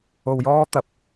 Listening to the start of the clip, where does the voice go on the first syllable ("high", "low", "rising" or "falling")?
low